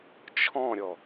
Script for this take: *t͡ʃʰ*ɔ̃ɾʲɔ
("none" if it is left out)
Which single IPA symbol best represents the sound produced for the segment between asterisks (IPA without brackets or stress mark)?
t͡ʃʰ